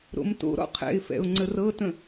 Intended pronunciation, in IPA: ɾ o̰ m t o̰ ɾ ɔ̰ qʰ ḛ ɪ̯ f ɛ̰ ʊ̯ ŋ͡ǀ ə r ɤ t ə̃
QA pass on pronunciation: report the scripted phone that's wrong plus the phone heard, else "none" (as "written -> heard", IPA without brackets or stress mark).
ḛ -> ɛ̰